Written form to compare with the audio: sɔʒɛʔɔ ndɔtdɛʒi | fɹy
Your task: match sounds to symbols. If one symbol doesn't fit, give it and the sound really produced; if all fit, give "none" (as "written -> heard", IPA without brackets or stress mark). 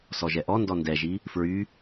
t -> n